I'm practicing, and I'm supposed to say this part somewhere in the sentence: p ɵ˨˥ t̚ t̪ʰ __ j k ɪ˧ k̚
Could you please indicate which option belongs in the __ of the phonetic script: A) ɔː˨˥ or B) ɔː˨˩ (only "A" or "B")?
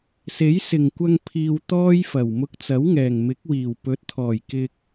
B